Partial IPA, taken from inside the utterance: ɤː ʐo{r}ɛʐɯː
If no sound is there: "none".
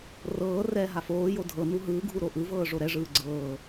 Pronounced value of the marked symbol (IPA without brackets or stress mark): ɾ